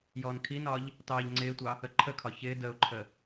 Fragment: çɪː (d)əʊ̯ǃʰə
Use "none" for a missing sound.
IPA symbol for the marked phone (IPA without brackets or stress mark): d